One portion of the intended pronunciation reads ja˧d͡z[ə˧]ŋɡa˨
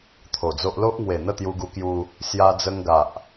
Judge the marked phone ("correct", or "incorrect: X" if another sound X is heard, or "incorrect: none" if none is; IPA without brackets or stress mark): correct